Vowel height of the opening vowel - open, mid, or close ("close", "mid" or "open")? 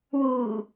close